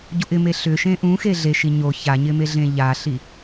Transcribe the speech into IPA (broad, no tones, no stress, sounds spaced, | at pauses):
ɟ u ʔ ɪ m e ɬ ʏ ʃ ẽ ʔ ũ x e ɮ e ʃ i ɲ o ç a ɲ ɪ m e ɮ ẽ ʎ a ɬ i